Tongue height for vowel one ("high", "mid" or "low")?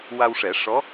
low